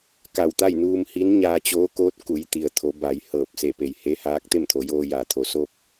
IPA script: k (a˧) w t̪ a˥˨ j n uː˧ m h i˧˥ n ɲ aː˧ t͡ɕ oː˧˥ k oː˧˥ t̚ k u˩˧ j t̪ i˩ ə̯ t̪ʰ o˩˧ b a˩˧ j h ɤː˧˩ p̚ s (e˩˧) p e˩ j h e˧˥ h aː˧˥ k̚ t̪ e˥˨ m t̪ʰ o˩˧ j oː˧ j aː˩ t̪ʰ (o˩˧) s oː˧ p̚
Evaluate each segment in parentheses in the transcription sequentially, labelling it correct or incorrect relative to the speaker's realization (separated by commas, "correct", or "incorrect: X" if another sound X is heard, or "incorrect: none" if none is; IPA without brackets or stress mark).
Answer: incorrect: a˧˩, incorrect: e˧˩, correct